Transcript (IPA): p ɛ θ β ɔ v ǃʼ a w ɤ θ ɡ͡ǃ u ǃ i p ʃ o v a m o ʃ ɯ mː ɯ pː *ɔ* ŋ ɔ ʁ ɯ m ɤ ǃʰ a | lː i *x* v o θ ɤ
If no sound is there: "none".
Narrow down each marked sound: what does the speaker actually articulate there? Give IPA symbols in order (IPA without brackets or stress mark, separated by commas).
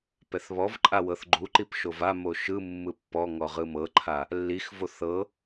ɔ, x